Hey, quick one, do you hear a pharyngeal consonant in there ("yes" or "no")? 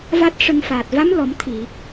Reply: no